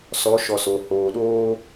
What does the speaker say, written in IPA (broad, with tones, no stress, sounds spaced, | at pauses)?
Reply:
s ɔ˨˦ ʃ ɔ˨ s o˨ h oː˨ ɗ oː˦